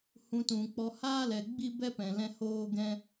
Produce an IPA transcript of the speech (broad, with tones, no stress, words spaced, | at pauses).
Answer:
hũ˧tũ˨k͡pɔ˧ haː˦lɛ˨ ɡ͡bi˦bɛ˦pɛ̃˨lɛ̃˧ hoː˦ɡɛ̃˦